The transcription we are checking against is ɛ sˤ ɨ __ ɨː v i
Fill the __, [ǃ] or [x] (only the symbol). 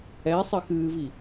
x